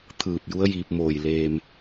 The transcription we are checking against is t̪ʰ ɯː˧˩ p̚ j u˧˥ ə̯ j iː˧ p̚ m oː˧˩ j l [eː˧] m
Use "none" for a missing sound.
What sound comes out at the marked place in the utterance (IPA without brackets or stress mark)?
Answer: eː˧